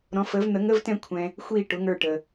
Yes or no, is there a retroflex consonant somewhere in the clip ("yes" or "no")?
yes